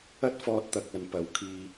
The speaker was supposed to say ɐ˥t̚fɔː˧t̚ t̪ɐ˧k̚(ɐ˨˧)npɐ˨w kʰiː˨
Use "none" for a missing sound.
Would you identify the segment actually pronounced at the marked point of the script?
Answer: ɐ˨˧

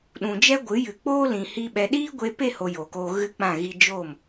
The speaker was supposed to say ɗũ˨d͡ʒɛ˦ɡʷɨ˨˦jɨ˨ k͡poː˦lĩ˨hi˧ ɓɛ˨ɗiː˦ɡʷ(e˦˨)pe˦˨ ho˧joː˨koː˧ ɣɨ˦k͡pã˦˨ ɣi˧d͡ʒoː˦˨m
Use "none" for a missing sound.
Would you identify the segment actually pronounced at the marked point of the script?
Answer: e˧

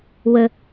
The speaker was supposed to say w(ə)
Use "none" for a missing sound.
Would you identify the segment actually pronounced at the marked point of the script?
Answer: ə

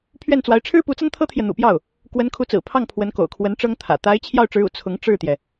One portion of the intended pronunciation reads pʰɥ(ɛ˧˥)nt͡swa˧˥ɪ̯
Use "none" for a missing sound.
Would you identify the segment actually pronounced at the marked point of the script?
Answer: ɛ˥˩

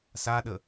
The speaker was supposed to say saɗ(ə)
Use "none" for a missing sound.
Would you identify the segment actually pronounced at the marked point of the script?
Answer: ə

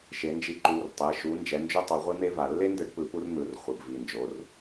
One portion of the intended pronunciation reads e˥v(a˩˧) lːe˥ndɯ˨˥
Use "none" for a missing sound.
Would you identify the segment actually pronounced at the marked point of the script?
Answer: a˩˧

